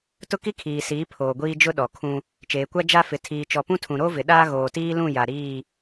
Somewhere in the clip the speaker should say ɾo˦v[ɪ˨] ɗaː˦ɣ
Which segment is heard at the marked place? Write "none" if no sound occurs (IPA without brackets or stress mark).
ɪ˨